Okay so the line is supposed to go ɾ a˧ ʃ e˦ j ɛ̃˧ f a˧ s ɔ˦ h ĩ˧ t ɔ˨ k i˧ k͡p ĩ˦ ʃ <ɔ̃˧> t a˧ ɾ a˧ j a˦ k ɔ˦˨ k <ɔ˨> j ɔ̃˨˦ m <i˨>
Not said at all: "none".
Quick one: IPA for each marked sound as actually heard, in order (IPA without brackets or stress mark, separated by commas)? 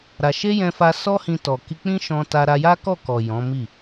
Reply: ɔ̃˧, ɔ˨, i˦˨